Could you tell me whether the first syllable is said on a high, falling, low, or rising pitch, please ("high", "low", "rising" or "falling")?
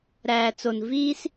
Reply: low